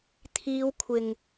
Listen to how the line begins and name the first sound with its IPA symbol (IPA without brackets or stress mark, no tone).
t̪ʰ